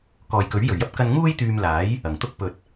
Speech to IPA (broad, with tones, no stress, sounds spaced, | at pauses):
k ɔː˨ j k ɵ˨˥ ɥ j ɵ˨˩ ɥ j ɐ˥ p̚ k ɐ˧ n ŋ uː˥ j t̪ yː˧ m l aː˨˥ j | ɐ˨˩ ŋ t̪ ʊ˥ k̚ p ɵ˨ t̚